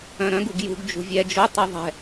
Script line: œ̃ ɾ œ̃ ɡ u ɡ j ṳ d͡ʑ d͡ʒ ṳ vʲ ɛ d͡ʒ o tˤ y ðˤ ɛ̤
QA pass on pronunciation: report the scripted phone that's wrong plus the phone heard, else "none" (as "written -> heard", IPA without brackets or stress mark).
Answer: d͡ʑ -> ɡ